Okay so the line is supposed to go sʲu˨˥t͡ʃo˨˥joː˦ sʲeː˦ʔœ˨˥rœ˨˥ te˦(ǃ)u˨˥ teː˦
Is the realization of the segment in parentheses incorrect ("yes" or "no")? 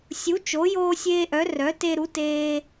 yes